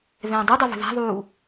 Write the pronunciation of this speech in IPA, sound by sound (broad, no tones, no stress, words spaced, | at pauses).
vɛ̃ːdˤudˤɛ və̤ða̤ðˤuː